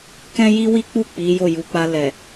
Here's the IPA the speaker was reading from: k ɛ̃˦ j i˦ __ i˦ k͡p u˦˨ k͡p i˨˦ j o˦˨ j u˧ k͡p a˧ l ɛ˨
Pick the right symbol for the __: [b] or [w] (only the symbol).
w